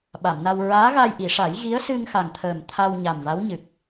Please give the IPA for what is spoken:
ɓ a˨˩˨ m n a˧ w ɹ aː˧˥ ɣ a˧ j ʔ i˨˩˨ ʂ a˨˩˦ j ɣ i˧˥ ə̯ s ɨ˧ ŋ x a˨˩ ŋ t̪ʰ əː˨˩ m t̪ʰ a˧ w ɲ a˨˩ m v a˧˥ w ɲ ɨ˨˩ k̚

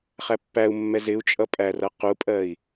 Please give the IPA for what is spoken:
χ æ pː æ u̯ mː ɛ z ɪ u̯ t͡ʃʼ ʌ pʼ æ r ʌ q u pʼ ɜ i̯

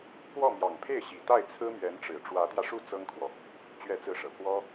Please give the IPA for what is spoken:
k w ɔ˥˩ m j ɑ˨˩ ŋ pʰ e˥˩ ɪ̯ ɕ i˨˩ t̪ a˥˩ ɪ̯ t͡sʰ ɹ̩˥ m ɥ ɛ˧˥ n ʈ͡ʂ ɻ̩˨˩ ʈ͡ʂ w ä˧˥ t̪ j ä˧ ʂ u˥˩ t͡s ɤ˥ ŋ kʰ w ɔ˨ | t͡ɕ ɥ ɛ˥˧ t͡s ɹ̩˥˩ ʂ ɤ˨˩ k w ɔ˥

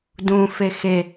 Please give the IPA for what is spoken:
d ũ f e x e

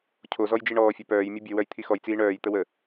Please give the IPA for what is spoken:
cʰ o z ɔ j d͡ʒ i ɳ ɔː fʲ œ p œː j mʲ u bʲ œ w œ j t̪ʰ i x ɔ j t͡s iː ɳ œː j t̪ ə w ə

